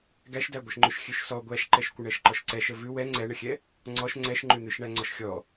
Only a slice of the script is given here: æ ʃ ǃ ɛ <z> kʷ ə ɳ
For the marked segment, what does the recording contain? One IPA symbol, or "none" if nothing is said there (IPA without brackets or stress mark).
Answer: ʃ